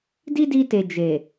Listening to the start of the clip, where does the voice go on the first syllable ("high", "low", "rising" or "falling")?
high